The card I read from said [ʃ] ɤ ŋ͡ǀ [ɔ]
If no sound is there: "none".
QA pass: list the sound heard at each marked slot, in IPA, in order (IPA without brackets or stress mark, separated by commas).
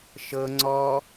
ʃ, ɔ